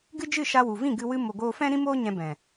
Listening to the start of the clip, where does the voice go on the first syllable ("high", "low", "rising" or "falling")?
high